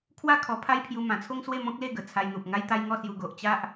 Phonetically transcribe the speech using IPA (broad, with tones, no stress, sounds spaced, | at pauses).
kʰ w a˥˧ kʰ ɔ˧ pʰ a˦ j pʰ j u˧ m ã˨˩ t͡sʰ o˦ ŋ s w e˥˧ m ɔ̃˦ k̚ l e˥˧ ɡ ə˨˩ t͡sʰ a˧ j n̪ u˨ p̚ ŋ a˦ j t̪ a˦ j ŋ ɔ˥˧ s j u˧ ɡ o˨ ʔ t͡ɕ a˦ ʔ